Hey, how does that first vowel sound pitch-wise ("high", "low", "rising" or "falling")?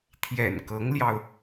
low